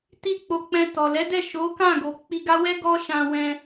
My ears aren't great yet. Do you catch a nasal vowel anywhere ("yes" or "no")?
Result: yes